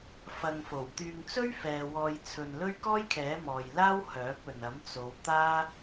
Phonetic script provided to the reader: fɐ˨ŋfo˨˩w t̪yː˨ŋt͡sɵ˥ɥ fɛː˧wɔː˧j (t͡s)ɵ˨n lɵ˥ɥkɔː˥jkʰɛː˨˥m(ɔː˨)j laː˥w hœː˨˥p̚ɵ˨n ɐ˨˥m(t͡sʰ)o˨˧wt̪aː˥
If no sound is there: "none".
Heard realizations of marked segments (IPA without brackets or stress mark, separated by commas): t͡sʰ, ɔː˨, t͡s